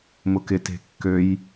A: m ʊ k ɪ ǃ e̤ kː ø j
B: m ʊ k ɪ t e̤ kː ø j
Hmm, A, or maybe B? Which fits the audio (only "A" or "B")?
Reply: B